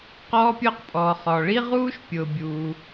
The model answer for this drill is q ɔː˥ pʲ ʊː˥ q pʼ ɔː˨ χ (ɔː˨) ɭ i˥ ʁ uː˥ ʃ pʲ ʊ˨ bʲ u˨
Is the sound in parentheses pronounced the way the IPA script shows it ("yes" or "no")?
yes